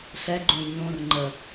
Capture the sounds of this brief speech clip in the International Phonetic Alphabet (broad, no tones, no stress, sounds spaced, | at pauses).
ɬ ɛ ɡ͡ǃ õ j ɲ õ r ŋ͡ǃ ə